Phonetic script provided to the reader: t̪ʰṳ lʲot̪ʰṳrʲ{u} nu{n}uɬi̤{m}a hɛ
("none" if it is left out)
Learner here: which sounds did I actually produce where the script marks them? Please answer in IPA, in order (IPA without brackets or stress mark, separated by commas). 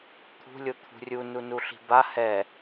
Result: u, n, b